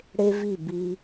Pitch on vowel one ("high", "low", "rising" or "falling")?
high